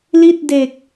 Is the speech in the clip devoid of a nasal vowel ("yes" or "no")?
yes